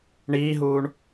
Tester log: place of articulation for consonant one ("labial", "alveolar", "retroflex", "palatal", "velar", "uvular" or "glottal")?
retroflex